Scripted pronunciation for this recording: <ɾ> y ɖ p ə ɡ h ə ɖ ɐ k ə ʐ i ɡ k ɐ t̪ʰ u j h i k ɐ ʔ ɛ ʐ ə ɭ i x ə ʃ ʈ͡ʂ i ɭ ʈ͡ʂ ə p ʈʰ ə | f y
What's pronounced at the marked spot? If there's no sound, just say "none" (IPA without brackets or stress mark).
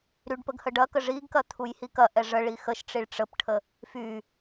ɾ